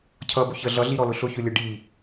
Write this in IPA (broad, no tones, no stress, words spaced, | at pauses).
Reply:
cʰʌbʊ çə ɮʌɮiɾɔlʊ ɬʊçʊlʲʌ ɖi